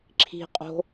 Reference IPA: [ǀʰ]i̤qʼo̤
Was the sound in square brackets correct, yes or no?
no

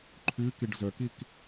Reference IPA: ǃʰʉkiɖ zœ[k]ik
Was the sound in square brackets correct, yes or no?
yes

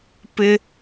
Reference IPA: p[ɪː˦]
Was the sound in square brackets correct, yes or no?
no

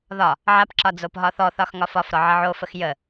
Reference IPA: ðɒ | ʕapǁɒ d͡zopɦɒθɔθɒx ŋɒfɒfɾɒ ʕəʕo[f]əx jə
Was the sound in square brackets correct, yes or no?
yes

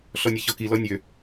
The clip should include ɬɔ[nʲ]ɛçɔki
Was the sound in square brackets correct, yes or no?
yes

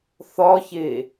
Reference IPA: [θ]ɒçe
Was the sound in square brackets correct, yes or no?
yes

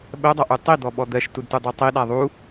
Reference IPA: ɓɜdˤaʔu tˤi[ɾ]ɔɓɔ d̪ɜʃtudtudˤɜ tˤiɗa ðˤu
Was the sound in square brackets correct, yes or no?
no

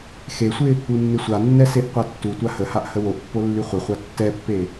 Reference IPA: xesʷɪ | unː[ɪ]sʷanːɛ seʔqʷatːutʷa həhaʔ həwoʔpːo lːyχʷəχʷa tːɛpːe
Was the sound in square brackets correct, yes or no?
yes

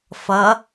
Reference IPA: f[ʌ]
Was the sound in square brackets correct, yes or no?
yes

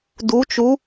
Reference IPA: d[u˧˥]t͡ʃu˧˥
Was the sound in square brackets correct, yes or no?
yes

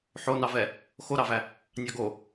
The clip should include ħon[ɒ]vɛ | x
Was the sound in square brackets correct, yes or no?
no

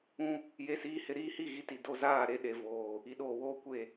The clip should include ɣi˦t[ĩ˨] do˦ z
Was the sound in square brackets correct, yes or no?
no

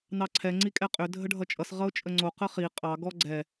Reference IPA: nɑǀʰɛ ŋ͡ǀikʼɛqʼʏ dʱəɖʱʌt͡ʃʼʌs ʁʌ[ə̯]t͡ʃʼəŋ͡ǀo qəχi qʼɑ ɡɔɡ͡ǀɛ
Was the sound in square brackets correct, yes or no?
no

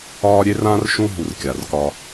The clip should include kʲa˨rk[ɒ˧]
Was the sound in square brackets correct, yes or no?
yes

